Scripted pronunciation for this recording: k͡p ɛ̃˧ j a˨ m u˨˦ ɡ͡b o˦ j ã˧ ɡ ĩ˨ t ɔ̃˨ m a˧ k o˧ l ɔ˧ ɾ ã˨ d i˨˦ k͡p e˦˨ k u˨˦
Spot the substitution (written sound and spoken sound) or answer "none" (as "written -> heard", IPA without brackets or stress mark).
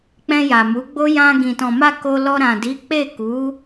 none